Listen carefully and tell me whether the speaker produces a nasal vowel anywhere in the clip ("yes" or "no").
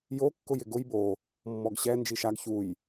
no